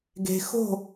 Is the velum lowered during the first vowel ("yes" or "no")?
no